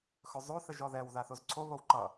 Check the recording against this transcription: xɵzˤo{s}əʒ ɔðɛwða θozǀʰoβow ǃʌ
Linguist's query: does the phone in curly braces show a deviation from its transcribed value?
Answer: yes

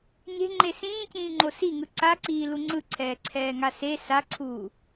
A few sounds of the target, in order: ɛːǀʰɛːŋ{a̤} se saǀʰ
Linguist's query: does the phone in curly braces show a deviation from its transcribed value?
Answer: yes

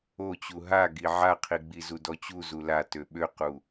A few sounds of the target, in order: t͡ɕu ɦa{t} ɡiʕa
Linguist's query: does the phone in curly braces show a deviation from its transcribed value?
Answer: yes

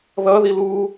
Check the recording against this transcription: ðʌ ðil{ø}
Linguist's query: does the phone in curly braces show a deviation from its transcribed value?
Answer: yes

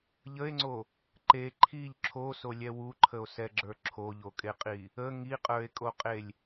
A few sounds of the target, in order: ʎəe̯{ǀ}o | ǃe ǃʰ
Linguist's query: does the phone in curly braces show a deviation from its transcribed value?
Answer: yes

